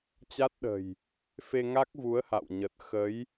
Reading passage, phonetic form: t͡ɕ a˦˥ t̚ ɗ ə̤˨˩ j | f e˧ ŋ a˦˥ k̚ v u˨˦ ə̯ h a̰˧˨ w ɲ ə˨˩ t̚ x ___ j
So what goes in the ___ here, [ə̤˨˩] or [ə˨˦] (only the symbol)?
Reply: ə˨˦